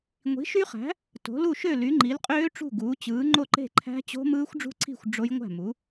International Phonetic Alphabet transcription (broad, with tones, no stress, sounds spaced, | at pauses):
ŋʷ i̤˩˥ ʃ y˦˥ χ æ̤˩˥ | t o̤˩˥ l u˥˩ ʃ ø˥˩ l y˩˥ ŋ͡ǃ i˩˥ l qʼ øː˦˥ ʈ͡ʂ ṳ˥˩ ɡ uː˩˥ t͡ɕ ɯː˩˥ ŋ͡ǃ o˥˩ ǃ e̤˥˩ ǃʰ æ̤˦˥ t͡ɕ o̤˦˥ m ɯː˦˥ xʷ ɖ͡ʐ ṳ˦˥ ǀʰ i̤˥˩ xʷ ɖ͡ʐ o˦˥ j ŋʷ æ̤˥˩ m u˩˥